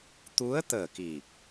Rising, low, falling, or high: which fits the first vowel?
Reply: rising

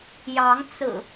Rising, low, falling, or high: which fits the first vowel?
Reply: rising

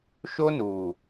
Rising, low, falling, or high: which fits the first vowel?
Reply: high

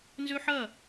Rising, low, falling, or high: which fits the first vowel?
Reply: high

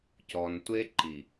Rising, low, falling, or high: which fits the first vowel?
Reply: high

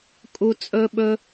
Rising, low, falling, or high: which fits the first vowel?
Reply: low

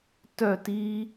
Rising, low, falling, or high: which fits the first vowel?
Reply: falling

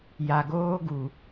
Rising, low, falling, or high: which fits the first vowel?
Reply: low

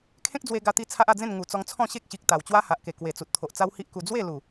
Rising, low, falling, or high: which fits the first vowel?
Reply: high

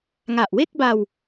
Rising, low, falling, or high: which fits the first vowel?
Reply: low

